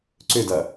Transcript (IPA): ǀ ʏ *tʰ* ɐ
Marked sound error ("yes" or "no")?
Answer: yes